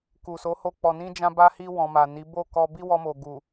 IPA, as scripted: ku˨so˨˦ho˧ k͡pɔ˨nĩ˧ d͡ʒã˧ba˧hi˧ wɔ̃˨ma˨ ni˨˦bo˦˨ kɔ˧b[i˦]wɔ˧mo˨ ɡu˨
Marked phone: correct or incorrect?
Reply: correct